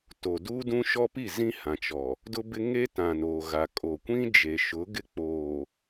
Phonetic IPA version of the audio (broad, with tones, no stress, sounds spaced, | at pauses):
t o˨ d u˦ d ũ˦ ʃ ɔ˦ p i˦˨ z ĩ˦ h ã˨ t͡ʃ ɔ˨ | d ʊ˦ b ɪ˦ ŋ e˦ t ã˨ n oː˨ ɣ a˨ kʼ o˨ kʷ ĩ˦ d͡ʒ e˨ ʃ ʊ˨˦ ɡ ɪ˦ k͡p oː˨